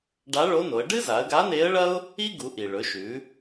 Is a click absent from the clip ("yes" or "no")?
yes